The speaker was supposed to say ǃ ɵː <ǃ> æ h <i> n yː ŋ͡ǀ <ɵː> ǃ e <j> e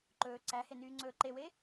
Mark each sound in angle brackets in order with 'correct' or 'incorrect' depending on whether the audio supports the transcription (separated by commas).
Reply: incorrect, incorrect, correct, incorrect